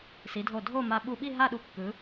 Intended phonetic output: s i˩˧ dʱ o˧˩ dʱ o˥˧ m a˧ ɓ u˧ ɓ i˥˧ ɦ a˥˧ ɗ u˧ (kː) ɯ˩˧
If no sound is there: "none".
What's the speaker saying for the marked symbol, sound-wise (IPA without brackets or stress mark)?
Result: kː